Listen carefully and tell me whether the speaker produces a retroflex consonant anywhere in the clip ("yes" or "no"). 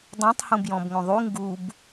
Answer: no